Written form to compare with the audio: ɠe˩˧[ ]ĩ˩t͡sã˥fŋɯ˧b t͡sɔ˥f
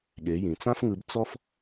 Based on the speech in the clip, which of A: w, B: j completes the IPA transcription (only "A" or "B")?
B